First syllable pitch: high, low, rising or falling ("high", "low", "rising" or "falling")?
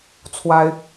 high